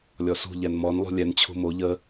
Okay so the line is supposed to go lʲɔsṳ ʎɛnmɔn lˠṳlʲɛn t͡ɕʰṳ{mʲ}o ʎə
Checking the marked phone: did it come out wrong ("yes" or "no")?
yes